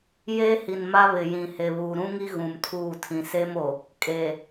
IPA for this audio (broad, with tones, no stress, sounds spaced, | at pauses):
j eː˦ h i˨ n m a˦ β ɪ˨ j ĩ˨ h e˨ β uː˨ ɾ ũ˦ ŋ i˦ ɣ ũ˨ m tʰ uː˦˨ tʰ ĩ˨ s e˦ m o˨ | kʼ eː˨